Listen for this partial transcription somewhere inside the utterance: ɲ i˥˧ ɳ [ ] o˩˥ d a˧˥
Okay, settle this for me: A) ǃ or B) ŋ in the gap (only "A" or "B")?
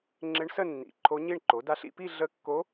A